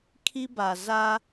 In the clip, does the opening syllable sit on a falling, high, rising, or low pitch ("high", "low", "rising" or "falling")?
high